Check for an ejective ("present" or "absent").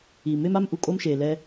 present